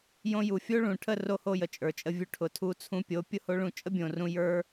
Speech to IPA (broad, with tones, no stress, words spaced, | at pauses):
jõ˧ju˨fʲo˦ɭũ˨ ʈʰə˦˨ro˧ho˧ jə˨t͡ʃʼə˞˨t͡ʃʼə˧vʲu˧ ʈʰʊ˨tʰu˧ t͡sʰũ˧pʲo˨˦ pʲʊ˦ho˦ɭũ˦˨ t͡ʃʼə˦bʲõ˨rũ˧ jə˞˦